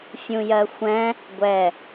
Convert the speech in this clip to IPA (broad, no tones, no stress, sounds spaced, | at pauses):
fʲ ũ j ɜ xʷ ɛ̃ | ɡʷ ɛ